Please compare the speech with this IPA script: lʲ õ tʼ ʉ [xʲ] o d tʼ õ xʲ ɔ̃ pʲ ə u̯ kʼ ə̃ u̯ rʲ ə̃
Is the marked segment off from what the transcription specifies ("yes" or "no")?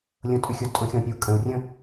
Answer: no